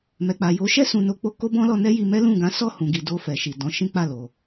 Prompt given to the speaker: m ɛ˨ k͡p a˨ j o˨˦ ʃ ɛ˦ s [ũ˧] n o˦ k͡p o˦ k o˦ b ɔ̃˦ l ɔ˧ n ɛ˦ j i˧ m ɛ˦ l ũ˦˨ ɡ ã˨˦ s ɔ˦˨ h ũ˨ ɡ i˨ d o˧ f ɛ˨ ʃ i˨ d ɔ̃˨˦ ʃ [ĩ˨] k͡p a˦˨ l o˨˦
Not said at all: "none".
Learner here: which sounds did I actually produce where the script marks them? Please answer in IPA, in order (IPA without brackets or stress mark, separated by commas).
ũ˧, ĩ˦